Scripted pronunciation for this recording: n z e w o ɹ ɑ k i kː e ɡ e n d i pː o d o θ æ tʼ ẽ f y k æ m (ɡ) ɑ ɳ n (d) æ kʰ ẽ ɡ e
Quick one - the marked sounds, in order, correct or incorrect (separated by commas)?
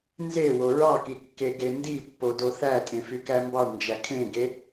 incorrect, incorrect